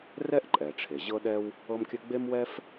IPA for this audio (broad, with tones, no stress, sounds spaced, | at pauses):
r ɛ˥ ʔ ǃʼ ɛ˩ ʈ͡ʂʰ e˩ ʑ ɤ˥ ɗ ɛ˥ w | ɤ˥ m kʲ ɘ˥ ɡ͡b e˥ m w ɛ˥ f